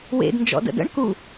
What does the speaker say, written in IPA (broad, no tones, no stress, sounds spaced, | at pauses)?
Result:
w ḛ d n d͡ʒ ɔ̰ d ə̰ d ə̰ ɳ k u